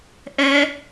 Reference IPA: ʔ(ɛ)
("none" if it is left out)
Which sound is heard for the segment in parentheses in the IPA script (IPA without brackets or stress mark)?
ɛ